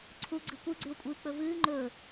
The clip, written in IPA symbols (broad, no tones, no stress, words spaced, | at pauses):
ǀʰuɡ͡ǀɨ kʷɨɡ͡ǀʉʊ̯kʷʼɨːk͡pɵ vɨː ŋ͡ǃɵː